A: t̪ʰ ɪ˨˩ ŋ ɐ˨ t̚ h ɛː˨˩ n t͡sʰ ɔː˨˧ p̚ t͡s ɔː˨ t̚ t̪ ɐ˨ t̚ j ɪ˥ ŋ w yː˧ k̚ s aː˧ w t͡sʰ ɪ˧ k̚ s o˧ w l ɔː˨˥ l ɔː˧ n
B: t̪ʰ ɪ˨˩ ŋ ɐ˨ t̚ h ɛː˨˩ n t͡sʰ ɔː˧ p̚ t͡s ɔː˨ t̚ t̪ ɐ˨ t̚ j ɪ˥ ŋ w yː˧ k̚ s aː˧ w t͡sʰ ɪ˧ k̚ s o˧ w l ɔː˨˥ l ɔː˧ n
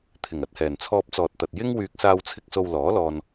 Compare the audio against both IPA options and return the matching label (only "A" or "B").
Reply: B